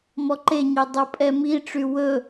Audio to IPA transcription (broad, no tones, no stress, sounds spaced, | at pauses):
m ɔ ǃ e ɲ e dˤ u pʼ ɛ m i ʈ͡ʂ y w ɵ